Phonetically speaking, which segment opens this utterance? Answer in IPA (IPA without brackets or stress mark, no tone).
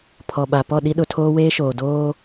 pʰ